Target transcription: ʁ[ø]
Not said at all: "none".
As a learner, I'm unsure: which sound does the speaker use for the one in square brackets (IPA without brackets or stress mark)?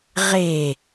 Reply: e